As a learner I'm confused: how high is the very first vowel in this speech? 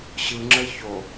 high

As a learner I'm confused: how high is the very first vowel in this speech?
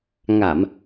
low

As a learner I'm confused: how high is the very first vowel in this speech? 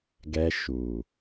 mid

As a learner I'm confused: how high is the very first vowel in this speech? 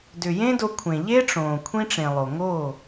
high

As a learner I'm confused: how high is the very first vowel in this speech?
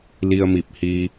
high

